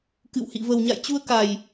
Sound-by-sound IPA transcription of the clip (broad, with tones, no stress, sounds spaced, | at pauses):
k ɨ̰˧˨ w h ḭ˧˨ v ə˨˩ w ɲ a̰˧˨ j t͡ɕ u˧ ə̯ k a˨˩ j